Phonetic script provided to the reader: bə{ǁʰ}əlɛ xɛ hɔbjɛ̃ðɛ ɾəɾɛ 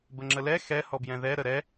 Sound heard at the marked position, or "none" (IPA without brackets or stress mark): ŋ͡ǁ